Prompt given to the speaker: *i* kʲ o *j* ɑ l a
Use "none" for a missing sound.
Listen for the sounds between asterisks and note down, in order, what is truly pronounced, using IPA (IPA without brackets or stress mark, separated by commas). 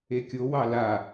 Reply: e, w